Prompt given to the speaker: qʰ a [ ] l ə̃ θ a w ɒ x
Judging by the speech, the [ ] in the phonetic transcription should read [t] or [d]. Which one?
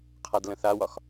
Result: d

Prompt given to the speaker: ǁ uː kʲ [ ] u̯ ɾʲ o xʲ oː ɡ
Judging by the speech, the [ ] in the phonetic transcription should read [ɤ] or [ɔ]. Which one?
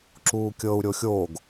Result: ɤ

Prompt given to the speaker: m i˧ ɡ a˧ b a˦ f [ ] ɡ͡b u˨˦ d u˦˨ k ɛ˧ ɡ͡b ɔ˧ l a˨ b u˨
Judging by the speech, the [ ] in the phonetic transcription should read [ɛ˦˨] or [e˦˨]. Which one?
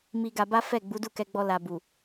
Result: ɛ˦˨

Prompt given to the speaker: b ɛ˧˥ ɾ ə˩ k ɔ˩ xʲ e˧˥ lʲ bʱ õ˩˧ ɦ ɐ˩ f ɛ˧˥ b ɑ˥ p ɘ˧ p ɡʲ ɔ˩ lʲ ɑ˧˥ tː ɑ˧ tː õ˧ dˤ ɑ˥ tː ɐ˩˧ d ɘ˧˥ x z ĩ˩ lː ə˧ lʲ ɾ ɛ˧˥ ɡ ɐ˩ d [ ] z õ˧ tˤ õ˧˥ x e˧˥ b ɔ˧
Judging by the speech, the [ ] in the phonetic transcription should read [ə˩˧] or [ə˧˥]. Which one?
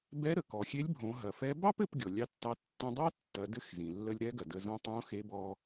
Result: ə˩˧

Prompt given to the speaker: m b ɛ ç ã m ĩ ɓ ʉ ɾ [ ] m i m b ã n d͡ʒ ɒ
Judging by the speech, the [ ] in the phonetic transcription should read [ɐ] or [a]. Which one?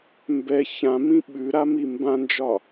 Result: a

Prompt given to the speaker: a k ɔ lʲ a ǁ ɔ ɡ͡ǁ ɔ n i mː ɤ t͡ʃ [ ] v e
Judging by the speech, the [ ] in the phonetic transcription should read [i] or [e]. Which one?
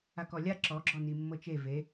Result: e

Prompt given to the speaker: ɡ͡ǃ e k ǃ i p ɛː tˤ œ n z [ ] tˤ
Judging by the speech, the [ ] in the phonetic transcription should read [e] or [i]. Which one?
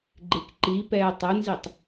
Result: i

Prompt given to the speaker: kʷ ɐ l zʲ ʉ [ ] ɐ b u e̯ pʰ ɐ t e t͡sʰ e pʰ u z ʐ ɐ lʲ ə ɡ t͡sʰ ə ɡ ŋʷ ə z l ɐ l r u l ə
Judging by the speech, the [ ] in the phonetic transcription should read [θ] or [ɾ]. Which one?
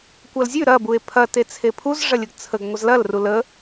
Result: ɾ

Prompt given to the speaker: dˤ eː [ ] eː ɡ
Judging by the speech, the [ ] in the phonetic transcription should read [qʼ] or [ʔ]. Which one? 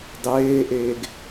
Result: ʔ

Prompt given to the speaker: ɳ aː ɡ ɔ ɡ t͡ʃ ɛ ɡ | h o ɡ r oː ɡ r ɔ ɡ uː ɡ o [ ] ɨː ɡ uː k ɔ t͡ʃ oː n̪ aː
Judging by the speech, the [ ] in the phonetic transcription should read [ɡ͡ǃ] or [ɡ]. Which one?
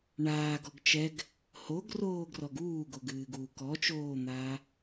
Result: ɡ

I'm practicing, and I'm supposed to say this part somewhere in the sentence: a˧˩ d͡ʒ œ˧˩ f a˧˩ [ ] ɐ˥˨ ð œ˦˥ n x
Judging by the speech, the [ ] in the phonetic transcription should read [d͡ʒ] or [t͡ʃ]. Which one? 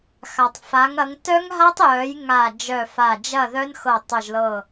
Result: d͡ʒ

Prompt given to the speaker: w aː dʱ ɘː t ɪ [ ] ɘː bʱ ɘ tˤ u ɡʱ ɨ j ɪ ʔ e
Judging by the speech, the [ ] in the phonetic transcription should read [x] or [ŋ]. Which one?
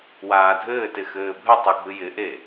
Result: x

